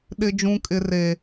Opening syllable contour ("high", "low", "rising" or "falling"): high